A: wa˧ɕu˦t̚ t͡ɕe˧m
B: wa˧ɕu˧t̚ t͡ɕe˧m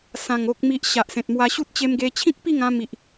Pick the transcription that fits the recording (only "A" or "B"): A